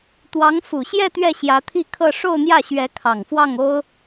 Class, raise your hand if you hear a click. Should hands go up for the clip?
no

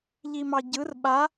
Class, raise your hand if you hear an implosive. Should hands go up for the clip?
yes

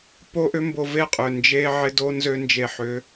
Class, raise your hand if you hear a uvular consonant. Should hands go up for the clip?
yes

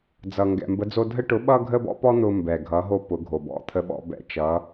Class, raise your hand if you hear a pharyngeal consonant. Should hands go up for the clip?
no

